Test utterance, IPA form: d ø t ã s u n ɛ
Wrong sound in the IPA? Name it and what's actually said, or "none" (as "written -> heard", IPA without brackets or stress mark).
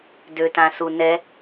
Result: none